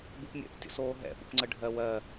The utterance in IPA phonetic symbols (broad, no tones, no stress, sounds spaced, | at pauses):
b u p mʲ ɛ̰ p tʲ o̰ s oː ɦ ɛ̰ p ṵ p ŋ͡ǀ ə ɖʱ ɜ w ɜ